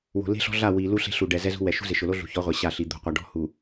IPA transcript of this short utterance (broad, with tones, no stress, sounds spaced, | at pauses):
w o̤˨ l e̤˦ ɬ ɔ̤˦ ɮ a˦˨ w i˨ l u˦ ɬ e̤˦ ɬ u˨ ɖ ɛ˨ z ɛ˦ z ṳ˦ w ɛ˨ ʃ ṳ˦ z ɪ˨ ʃ ʊ˨ l o˦ ɮ ṳ˨ ç ɔ˨˦ ʁʷ ɛ˨ ɕ a˦˨ ɬ i˨ d̪ o̤˨ qʷ a˨ ɖ ɔ̤˦˨ h u˨